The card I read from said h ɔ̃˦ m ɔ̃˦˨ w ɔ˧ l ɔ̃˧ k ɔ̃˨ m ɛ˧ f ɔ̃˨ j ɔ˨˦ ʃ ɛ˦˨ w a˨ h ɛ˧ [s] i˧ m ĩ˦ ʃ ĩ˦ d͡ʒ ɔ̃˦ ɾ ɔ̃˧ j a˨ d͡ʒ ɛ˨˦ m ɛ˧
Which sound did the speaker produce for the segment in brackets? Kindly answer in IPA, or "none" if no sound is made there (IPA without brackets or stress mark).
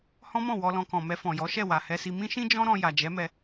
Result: s